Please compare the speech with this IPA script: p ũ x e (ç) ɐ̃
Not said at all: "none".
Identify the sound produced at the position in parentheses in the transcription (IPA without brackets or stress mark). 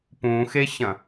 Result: ç